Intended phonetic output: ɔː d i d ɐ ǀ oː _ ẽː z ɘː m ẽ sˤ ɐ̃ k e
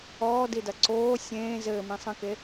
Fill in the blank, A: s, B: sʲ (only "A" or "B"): B